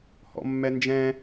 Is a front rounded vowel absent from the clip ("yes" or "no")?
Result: yes